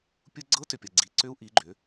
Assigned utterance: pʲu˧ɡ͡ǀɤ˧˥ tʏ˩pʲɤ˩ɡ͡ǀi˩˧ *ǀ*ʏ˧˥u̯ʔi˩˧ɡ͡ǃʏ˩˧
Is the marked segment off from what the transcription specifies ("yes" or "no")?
no